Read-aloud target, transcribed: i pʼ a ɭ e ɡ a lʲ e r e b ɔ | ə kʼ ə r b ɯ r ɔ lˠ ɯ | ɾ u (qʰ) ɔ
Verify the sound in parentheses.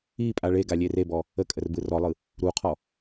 correct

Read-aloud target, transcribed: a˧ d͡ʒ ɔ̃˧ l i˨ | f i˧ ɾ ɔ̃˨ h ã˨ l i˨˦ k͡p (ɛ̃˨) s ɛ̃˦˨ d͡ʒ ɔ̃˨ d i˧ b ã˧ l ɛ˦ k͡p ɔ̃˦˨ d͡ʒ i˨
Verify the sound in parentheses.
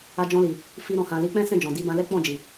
incorrect: ɛ̃˦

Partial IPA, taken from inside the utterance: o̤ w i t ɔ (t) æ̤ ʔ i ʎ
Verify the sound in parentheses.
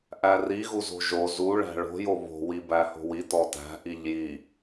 correct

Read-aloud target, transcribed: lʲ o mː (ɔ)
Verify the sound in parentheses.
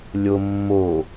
incorrect: o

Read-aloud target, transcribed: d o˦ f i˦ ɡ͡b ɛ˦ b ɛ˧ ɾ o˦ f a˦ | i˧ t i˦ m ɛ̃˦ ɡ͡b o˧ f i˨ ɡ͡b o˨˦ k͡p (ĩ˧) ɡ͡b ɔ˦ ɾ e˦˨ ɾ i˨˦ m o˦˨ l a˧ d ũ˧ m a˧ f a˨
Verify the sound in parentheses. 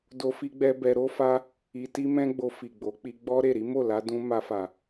incorrect: i˧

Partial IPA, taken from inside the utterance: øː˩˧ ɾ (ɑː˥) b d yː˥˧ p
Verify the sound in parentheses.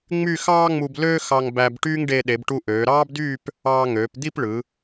correct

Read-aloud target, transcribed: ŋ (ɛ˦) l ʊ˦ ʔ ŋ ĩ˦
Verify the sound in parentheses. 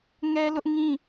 correct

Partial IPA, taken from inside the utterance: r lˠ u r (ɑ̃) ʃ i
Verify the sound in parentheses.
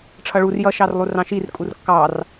correct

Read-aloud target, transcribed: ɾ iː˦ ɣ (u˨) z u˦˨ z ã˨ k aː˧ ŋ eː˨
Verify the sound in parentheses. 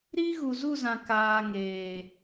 correct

